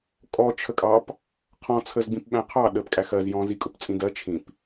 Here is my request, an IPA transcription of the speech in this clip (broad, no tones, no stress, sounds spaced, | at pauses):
kʼ ɔ t͡ʃʰ ə kʼ ɑ p | qʰ ɔ̃ t͡sʰ ə z ɡ͡b ĩ p ɓ æ̃ qʰ ɑ ɗ ə p kʼ æ x ɜ z j ɔ̃ z i kʼ ʊ p t͡sʼ ĩ d ɜ t͡ʃʰ ĩ p